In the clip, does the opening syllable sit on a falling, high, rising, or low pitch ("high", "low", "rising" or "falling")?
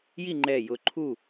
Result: falling